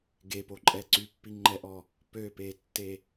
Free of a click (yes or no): no